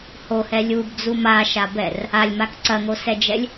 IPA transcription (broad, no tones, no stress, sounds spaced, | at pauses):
h o h ɛ lʲ u b d͡z u m a ʃ a b ɛ r | a lʲ m a k ǀ ɐ ŋ o s ɛ d͡ʒ ɛ lʲ